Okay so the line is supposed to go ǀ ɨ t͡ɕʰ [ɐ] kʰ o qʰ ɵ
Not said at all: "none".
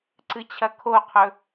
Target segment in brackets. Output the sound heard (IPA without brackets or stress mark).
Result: ɐ